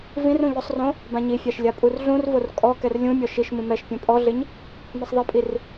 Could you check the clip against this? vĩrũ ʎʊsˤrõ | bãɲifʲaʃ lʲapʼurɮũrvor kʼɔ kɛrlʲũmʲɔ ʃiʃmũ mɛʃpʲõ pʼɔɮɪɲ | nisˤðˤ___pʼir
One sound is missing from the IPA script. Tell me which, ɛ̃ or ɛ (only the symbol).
ɛ